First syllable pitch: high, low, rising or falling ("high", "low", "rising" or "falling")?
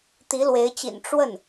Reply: rising